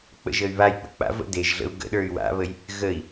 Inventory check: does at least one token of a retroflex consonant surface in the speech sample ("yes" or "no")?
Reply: no